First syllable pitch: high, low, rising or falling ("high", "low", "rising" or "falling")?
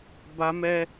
high